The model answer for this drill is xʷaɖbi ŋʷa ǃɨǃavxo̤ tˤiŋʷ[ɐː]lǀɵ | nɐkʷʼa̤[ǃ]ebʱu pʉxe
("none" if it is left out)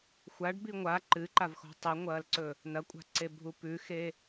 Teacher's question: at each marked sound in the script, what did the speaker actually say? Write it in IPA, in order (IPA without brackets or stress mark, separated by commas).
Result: ɐː, ǀ